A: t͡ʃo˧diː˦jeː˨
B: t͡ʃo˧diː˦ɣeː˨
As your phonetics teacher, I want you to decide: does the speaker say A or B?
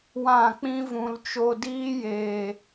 A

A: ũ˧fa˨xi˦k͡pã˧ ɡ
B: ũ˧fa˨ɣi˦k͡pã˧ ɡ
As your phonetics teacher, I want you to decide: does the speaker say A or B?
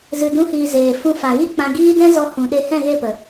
B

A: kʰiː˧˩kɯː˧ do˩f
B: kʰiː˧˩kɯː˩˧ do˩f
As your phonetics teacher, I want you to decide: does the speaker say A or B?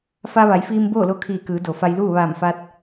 B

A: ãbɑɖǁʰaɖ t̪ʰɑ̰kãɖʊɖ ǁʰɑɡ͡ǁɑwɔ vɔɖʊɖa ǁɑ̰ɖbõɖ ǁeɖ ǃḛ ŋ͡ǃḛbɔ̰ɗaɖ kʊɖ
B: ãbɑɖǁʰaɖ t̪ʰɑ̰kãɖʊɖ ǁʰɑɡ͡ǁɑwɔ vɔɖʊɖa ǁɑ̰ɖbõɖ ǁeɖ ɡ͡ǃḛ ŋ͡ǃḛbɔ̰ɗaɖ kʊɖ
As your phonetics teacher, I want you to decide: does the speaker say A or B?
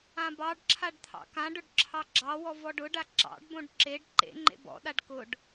A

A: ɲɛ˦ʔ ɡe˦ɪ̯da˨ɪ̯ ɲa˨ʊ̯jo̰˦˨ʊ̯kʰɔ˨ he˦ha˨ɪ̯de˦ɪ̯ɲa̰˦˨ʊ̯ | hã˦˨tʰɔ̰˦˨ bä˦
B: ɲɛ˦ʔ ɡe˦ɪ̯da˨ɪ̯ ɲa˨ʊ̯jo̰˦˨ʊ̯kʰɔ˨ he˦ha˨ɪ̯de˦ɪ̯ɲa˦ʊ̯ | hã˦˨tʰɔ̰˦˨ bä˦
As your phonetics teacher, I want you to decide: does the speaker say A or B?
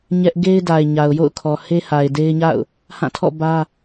A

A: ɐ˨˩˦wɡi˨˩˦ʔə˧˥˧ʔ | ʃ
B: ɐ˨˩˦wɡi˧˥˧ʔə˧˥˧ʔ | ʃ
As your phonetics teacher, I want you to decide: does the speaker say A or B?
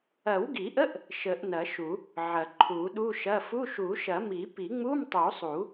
A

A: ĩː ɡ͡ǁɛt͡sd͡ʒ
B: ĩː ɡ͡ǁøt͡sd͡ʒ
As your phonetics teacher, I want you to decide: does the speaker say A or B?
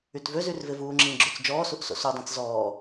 B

